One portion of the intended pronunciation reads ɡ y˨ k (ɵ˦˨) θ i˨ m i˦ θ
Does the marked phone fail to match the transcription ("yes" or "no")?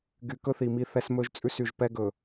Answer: yes